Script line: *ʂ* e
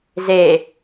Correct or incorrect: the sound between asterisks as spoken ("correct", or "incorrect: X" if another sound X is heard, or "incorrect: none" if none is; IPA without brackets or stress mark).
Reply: incorrect: z